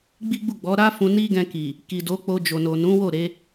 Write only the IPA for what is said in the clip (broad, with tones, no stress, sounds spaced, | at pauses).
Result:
ɡ͡b i˦ ɡ͡b u˦˨ ɡ͡b ɔ˨˦ ɾ a˦ f ũ˧ n i˦ ɡ ɛ̃˧ k i˨ | k i˨ d o˨˦ k͡p o˧ d͡ʒ o˨ n o˨ n ũ˨˦ w o˦˨ ɾ e˨˦